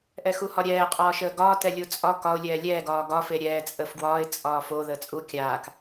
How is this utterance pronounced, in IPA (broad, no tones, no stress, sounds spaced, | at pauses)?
ʔ ɛ x u h ɒ ɾʲ ɛː qʼ ɒː ʃ əː ɡ ɒː t ɛ lʲ u t͡sʼ ɒ k ɒ ʊ̯ lʲ ɛː lʲ ɛː ɡ ɒː ɡ ɒ f e ɾʲ ɛː t͡sʼ əː f ɡ w ɒː ɪ̯ t͡sʼ ɒː f o ð əː t͡sʼ u kʲ aː k